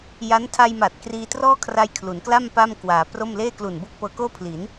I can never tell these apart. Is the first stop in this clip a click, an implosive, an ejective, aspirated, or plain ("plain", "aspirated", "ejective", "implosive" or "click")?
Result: aspirated